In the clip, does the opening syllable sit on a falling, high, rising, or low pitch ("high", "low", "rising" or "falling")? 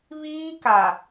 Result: high